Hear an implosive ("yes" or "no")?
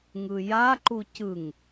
no